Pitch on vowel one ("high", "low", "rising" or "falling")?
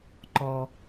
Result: low